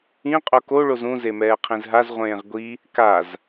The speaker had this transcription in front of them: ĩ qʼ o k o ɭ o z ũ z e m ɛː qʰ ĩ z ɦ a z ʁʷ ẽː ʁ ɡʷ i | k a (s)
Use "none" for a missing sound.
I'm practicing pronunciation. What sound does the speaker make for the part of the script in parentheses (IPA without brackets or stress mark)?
z